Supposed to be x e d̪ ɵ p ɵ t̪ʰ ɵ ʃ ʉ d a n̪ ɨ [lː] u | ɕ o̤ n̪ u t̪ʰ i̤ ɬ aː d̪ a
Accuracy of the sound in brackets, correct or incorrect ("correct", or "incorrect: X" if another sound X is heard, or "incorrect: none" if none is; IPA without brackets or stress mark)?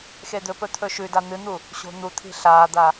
incorrect: n̪